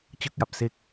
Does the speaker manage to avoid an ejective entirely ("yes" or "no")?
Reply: yes